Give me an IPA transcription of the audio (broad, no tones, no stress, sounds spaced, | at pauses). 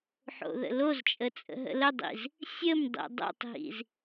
ħ o̰ ð ə̰ l o z t͡ʃʼ ə t͡sʼ ə̰ ɦ ə̰ l ə dˤ ḭ z | sʲ ə m dˤ ḭ dˤ o̰ tˤ ɦ ḭ z